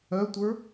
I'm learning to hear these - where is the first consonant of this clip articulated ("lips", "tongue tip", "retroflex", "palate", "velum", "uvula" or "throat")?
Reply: tongue tip